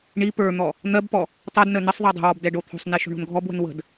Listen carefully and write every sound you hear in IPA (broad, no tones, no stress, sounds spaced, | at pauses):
ɳ i p ə˞ n̪ ɔ | n̪ ɜ b p ɔ | tˤ o d n ə n ə sˤ ðˤ ɜ dˤ ə̤ w ɔ b d ɛ ɖ o t̪ʰ o̤ sˤ n i ʃ o̤ ɳ o̤ n ɡʱ ɔ b w ə̤ n w ə̤ d